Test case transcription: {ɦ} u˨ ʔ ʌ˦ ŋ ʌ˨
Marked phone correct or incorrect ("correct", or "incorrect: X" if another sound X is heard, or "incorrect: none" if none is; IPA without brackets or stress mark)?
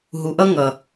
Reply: correct